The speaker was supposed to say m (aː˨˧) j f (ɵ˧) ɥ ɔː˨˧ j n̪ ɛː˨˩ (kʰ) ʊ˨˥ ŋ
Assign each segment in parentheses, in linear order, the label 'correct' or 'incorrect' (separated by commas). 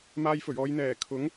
incorrect, incorrect, correct